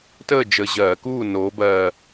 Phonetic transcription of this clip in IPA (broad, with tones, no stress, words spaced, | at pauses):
təː˥˨d͡ʒə˨˩ ʑɜː˧˩˧kuː˥˨ noː˩˧bɜ˨˩